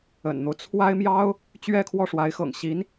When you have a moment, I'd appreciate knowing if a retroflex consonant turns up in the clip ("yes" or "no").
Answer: yes